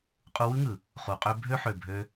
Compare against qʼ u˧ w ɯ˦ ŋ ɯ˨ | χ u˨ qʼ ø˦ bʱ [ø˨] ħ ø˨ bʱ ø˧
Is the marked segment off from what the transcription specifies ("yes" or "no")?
yes